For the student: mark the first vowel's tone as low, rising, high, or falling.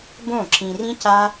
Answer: falling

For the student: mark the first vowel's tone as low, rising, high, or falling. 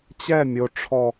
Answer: falling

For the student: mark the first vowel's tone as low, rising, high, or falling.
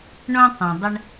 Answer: high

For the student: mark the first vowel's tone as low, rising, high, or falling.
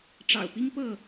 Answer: low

